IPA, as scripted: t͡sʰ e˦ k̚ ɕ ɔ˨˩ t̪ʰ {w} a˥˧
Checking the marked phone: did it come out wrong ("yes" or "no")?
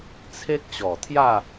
yes